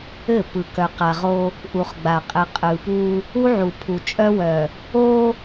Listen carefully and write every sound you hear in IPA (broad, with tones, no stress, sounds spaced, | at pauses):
ɘ˦˨ p ɯ˨ k œ˨ q a˨ ʁ o˦ | ʔ u˨ χ ɡ͡b a˨ qʼ ɘ˨ qʼ ɯ˨ p u˦ | u˦ ʕ u˨ pʰ u˨ t͡ʃʼ œ˦ w œ˨ | o˦